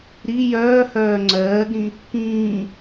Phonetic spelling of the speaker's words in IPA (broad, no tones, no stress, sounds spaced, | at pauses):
ɾ i j œː h œː ŋ͡ǀ ɜː ɡ ɾ ĩ | k ĩː